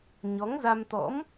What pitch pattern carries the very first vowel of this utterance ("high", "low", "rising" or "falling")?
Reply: rising